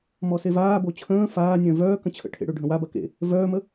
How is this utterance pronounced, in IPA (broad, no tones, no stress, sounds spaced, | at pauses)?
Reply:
m ɔ s e v aː b o t͡ɕʰ ə̃ː f aː nʲ œ̃ v œː k ə̃ t͡ɕʰ ə̰ ʈʰ ḛ ɽ ø ɖʱ ə̃ w a b ɐ k ḛ | v œː m ə